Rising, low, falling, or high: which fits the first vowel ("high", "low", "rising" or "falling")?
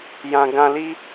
high